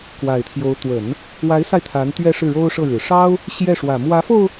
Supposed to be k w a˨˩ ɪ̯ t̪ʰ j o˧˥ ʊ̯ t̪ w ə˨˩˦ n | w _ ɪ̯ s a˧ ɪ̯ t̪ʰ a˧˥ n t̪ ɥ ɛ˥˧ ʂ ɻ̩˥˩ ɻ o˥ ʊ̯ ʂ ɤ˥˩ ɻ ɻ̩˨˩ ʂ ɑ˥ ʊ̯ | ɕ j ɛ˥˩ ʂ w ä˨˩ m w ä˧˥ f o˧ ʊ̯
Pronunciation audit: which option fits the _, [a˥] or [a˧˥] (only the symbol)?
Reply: a˧˥